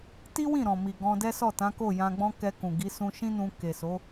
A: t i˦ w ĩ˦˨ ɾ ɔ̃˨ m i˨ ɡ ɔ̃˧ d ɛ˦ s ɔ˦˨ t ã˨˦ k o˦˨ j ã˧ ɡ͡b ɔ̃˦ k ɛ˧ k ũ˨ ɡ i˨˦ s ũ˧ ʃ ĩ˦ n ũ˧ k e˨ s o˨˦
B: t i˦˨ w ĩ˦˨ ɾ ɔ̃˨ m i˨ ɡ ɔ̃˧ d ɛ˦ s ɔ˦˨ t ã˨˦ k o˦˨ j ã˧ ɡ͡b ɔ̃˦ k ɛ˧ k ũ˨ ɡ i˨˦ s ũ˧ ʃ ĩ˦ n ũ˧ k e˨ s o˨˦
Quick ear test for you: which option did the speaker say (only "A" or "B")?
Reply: A